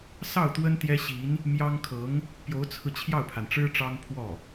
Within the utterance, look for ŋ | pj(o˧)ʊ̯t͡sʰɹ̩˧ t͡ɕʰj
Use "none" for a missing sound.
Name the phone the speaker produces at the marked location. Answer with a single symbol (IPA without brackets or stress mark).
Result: o˧˥